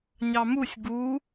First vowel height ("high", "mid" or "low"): low